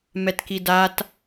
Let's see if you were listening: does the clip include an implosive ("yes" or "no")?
no